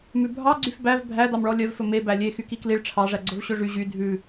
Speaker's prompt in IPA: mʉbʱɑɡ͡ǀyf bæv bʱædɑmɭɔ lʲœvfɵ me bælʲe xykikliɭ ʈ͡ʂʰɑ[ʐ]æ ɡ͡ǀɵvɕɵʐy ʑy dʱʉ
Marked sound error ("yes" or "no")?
no